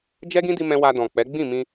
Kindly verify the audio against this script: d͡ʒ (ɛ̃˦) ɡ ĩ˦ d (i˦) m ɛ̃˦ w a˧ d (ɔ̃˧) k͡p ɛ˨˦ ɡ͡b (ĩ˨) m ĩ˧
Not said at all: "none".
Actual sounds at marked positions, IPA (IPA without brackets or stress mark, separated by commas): ɛ˦, i˦, ɔ̃˨, ĩ˦˨